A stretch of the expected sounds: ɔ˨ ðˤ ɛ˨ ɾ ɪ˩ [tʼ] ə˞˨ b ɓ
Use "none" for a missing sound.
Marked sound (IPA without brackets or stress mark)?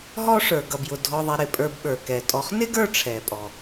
pʼ